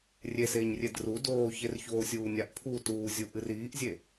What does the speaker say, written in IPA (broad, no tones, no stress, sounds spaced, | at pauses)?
rʲ e s eː ɲ rʲ e d r u d oː ç e r ç oː sʲ uː nʲ a ʔ pʰ u t uː zʲ u ʔ ɨ r iː ʔ zʲ e